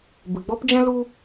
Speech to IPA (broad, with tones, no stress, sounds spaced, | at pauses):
b ɨ˨ ɡ͡b ɔ˦ p d͡ʒ ɛ̃˦ l u˧